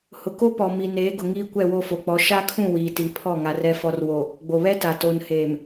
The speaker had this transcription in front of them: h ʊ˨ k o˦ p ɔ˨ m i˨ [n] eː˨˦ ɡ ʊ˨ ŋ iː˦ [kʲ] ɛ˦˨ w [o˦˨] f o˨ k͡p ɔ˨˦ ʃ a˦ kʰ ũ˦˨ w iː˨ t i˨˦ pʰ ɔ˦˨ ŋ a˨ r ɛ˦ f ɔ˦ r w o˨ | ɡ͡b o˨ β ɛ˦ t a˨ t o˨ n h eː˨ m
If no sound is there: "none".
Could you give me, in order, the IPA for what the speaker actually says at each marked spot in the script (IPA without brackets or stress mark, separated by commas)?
n, kʷ, o˦˨